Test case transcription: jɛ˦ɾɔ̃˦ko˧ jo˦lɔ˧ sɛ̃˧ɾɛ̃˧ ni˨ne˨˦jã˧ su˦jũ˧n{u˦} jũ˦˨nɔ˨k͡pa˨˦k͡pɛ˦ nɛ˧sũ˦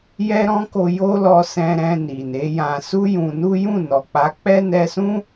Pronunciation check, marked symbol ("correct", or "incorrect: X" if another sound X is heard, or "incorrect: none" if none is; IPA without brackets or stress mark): correct